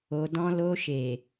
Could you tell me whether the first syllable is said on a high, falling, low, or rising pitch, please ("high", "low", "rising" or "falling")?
low